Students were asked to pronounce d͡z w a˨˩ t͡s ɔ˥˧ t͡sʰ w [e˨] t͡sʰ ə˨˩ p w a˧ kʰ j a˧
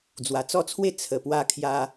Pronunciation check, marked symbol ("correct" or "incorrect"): incorrect